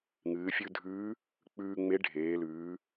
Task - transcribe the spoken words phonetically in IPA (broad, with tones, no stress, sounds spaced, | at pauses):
ŋ ɨː˩˧ fʲ ʉ˧ dʱ ʉː˧˥ | k͡p ʉː˧ ŋ͡m e˧˥ ɖʱ eː˩˧ l ʉː˩˧